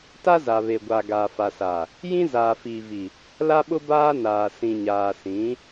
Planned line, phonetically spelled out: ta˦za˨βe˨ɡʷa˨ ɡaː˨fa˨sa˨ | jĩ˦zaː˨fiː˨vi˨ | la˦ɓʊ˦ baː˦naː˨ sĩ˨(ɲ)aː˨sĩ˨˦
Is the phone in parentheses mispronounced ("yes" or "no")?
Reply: no